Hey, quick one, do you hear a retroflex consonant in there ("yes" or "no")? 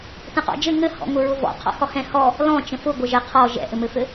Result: no